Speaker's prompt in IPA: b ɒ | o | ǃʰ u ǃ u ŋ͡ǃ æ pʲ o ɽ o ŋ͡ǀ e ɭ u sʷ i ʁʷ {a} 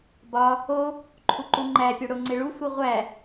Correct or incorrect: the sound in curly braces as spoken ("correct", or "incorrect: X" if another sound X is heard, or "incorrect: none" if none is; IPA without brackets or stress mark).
incorrect: æ